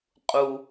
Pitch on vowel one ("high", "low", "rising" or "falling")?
low